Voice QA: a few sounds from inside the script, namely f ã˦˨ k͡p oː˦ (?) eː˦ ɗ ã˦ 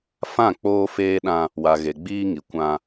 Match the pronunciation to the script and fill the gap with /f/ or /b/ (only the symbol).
f